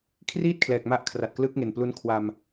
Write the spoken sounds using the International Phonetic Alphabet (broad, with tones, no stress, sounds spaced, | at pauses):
kʰ r iː˥˩ t̚ kʰ l ɛː˨˩ k̚ m a˦˥ ʔ kʰ r a˨˩ t̚ k l ɯ˦˥ k̚ ŋ e˨˩ n p l u˦˥ n kʰ w a˧ m